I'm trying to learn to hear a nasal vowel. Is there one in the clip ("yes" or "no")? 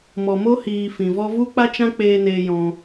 yes